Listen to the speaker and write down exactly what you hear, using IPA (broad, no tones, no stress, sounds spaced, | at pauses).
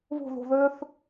β o̤ ð o̤ ð øː θ